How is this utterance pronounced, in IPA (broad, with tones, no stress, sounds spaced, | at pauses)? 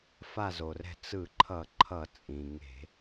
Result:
f a˦˨ z o˩ r ɛ̤˦˨ t͡s ɯ˧˩˧ ǃʰ ʌ˧˩˧ ǃʰ ʌ˧˩˧ t͡sʼ ĩ˩ ŋ e̤˧˩˧